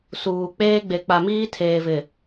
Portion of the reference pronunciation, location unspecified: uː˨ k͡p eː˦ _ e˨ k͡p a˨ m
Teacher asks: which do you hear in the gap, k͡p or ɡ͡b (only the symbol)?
ɡ͡b